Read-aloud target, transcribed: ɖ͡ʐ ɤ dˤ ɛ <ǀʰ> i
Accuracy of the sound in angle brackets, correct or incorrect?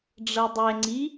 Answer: incorrect: ŋ͡ǀ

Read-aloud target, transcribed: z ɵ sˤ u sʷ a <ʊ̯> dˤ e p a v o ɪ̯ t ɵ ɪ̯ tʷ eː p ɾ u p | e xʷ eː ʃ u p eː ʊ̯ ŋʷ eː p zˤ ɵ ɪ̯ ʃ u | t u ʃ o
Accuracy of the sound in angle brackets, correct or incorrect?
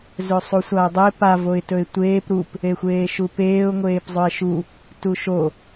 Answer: correct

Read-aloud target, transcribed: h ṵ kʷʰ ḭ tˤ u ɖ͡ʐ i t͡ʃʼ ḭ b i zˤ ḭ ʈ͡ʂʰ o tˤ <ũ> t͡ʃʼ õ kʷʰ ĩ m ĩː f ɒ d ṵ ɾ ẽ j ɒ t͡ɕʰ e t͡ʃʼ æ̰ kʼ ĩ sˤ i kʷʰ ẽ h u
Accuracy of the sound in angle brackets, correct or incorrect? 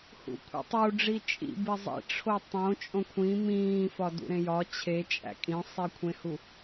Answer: incorrect: õ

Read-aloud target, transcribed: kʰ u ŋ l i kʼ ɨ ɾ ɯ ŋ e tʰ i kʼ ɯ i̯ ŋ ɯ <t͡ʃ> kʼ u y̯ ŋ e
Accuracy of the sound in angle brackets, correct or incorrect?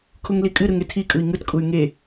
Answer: incorrect: t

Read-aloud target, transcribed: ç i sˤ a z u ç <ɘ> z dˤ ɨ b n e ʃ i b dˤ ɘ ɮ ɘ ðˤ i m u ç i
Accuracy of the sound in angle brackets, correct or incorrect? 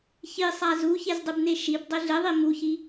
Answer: incorrect: e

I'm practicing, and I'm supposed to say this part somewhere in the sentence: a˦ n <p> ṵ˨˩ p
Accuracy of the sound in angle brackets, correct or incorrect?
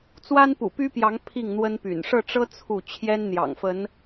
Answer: correct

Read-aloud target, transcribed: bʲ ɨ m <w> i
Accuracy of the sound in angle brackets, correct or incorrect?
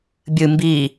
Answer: incorrect: b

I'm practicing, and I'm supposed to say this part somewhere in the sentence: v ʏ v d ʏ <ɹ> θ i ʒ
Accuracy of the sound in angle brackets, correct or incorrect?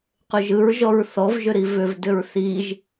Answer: correct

